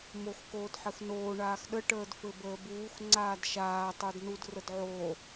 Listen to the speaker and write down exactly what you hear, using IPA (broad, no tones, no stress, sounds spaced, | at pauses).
m o x k oː d ħ ɘ x n oː ɳ aː x ɗ ə ʈ əː d f ɘ b əː b uː x ŋ͡ǀ aː d ʃ aː tˤ ə˞ d n u d r ə d ʕ oː